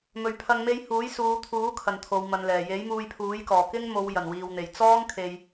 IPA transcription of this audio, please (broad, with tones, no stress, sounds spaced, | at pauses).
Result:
m ɵ˨ ɥ pʰ ɐ˧ ŋ m e˥ j h uː˨˥ j s uː˨˧ t̪ʰ uː˨˥ kʰ ɐ˨˩ n t̪ʰ o˨˧ w m ɐ˨˧ n l ɛː˨˩ j e˨˥ j m uː˧ j pʰ uː˨˥ j k ɔː˨˩ k ɪ˥ ŋ m o˨˧ w j ɐ˨˩ n w iː˨ w n̪ e˨˩ j t͡s ɔː˥ ŋ kʰ e˨ j